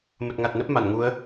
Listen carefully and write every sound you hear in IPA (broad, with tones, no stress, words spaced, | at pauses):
mə˨˩t̚ŋa˨˩t̚nə˦˥p̚ ma˧˩nŋu˨˦ə̯